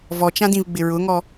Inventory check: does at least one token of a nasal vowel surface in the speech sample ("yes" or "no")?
yes